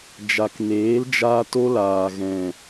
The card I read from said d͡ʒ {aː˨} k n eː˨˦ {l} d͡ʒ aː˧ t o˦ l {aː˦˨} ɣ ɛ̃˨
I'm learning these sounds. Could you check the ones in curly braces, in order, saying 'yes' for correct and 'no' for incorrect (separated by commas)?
no, yes, no